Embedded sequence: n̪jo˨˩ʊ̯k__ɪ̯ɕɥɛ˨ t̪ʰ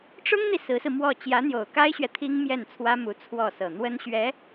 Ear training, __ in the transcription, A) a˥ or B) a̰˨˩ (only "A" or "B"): A